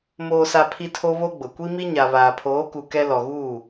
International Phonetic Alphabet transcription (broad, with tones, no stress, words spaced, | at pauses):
moː˨sa˨ pʰi˦tʰo˦βo˦ɡ͡bʊ˨ kʷi˦mi˦ɲa˨ βaː˨pʰoː˨˦ku˨ kɛ˦ lɔ˨ɣuː˦˨